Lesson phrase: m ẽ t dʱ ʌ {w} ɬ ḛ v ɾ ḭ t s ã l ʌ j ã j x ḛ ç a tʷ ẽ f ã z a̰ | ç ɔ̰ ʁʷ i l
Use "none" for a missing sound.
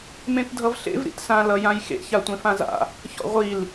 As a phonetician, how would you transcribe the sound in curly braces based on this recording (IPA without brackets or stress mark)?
v